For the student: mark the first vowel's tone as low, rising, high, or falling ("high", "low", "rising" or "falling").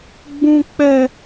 high